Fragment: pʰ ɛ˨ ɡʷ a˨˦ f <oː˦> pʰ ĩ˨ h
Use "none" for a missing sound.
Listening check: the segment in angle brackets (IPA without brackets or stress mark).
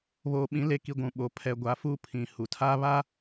uː˦